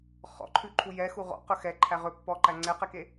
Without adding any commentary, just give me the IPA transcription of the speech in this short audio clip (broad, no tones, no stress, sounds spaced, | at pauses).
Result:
χ ɔ̰ ǃʰ ʉ ǃʰ u j ɛ x u ʁ ɔ̰ q ɵ x ɛ ǃʰ æ ʁ ɵ pː ɔ ǃ æ ŋ͡ǀ ɛ q ɛ k e